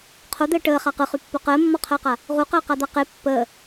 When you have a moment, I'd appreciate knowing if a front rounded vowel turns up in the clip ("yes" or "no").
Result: yes